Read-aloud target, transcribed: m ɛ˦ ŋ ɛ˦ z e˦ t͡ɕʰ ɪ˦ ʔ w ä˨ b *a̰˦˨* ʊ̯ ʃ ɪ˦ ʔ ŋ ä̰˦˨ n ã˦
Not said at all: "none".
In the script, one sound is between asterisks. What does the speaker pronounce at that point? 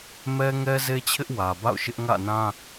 a̰˦˨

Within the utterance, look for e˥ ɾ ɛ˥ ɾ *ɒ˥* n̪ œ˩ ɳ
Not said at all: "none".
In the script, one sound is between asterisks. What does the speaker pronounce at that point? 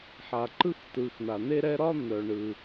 ɒ˥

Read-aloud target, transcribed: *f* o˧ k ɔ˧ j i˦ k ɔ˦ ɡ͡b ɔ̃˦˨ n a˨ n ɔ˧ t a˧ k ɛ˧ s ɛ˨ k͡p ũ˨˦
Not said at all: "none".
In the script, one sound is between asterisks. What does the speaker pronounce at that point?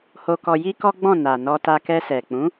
h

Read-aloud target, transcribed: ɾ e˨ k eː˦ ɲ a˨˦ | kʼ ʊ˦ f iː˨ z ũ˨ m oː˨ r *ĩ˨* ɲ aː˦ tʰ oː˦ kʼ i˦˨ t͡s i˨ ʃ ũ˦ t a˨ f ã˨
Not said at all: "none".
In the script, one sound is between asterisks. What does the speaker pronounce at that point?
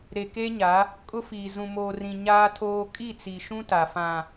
ĩ˨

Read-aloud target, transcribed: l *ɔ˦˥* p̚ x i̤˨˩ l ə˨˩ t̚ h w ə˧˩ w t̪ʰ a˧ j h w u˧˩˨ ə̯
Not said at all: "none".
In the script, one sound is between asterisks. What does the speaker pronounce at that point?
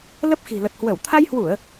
ə˦˥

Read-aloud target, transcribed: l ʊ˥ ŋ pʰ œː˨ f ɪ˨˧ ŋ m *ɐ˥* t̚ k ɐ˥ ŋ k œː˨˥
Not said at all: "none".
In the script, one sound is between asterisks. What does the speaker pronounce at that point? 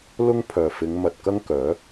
ɐ˨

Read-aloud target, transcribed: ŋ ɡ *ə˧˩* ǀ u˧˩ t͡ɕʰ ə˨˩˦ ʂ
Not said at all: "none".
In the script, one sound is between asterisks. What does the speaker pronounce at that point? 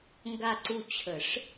a˧˩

